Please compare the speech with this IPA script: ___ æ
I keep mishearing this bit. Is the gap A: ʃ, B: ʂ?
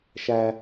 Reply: A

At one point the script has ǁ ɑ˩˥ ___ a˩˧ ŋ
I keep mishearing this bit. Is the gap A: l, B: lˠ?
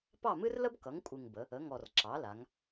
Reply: A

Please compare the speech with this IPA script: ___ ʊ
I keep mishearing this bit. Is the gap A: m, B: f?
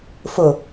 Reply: B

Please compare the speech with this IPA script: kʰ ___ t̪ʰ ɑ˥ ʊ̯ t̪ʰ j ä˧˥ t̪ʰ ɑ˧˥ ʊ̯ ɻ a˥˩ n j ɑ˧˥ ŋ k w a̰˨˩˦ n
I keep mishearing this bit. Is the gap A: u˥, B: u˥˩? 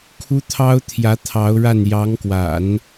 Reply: A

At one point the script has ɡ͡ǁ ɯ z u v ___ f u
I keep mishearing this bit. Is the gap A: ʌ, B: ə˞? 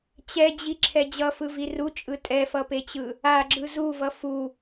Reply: A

